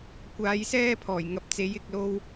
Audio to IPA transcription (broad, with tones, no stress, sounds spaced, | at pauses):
kʷ aː˨˧ j s ɛː˥ pʰ ɔː˨˩ j ŋ ɐ˨˥ p̚ t͡s e˨˥ j ɪ˨˥ k̚ l o˥ w